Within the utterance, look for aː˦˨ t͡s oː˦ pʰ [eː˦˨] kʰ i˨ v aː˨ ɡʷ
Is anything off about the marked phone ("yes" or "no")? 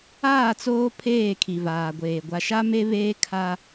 no